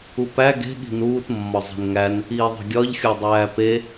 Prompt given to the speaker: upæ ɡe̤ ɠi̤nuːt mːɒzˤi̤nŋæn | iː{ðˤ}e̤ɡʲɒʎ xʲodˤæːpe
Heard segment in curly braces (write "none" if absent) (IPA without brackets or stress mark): ðˤ